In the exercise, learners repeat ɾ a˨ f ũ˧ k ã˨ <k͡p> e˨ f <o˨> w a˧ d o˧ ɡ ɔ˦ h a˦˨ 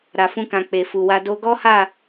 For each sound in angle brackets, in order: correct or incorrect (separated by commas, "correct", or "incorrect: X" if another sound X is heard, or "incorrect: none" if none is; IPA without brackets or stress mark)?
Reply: correct, incorrect: u˨